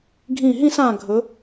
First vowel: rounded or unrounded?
unrounded